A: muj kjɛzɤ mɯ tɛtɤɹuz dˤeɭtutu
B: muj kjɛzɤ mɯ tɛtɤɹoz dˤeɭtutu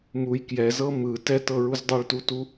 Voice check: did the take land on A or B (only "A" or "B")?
A